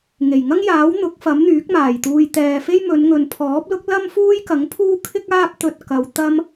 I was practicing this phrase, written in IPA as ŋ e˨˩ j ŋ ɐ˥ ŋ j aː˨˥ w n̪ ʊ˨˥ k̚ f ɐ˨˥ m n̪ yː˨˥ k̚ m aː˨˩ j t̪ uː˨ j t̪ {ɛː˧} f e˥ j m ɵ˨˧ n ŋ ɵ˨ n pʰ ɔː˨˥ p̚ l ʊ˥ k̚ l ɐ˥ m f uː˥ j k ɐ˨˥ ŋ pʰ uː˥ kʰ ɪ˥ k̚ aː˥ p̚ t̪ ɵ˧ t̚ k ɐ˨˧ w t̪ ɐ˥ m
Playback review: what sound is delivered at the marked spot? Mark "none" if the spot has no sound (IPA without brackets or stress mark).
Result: ɛː˨